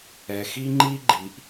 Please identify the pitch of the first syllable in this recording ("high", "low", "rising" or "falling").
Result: low